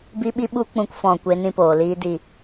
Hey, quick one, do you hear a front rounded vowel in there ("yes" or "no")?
no